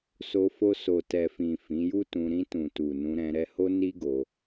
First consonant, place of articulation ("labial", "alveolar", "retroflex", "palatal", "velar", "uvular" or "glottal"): alveolar